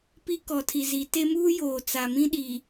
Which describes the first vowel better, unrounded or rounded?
unrounded